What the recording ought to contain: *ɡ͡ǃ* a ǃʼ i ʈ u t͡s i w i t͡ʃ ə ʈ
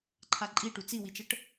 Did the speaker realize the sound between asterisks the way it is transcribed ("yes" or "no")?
no